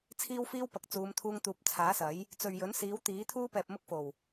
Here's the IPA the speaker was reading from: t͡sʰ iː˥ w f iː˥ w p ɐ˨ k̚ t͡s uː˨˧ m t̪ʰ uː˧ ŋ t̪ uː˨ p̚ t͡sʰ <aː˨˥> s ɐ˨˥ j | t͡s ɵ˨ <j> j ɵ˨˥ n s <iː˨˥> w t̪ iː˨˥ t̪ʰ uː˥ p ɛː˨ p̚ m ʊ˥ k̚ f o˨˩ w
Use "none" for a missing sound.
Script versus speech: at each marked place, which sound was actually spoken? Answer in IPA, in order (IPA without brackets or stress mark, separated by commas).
aː˨˥, ɥ, iː˨˥